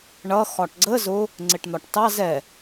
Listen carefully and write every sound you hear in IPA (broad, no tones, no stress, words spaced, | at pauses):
ɳʌ xɒʈɡ͡ǀə zʊ | ŋ͡ǀɪʈn̪ɒʈtɑ zɛ